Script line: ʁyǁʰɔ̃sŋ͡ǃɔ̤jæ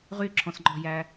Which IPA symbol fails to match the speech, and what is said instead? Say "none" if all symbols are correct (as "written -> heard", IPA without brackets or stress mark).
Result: none